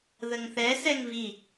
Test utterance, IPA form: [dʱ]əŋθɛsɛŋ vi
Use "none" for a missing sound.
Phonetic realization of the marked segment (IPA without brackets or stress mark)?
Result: ð